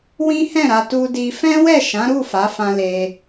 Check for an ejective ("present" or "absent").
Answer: absent